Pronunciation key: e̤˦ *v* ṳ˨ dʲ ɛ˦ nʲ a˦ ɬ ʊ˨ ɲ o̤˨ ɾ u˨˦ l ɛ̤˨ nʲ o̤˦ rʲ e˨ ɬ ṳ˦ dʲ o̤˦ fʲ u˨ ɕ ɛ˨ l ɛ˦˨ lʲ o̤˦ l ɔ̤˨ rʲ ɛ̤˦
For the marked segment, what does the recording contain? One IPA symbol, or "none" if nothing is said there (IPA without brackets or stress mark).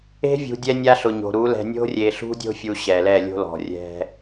vʲ